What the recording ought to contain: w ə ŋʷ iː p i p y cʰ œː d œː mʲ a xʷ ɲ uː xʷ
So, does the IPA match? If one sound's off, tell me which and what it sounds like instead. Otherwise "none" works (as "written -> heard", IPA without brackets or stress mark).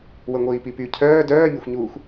none